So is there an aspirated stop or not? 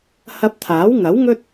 yes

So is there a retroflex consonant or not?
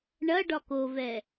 yes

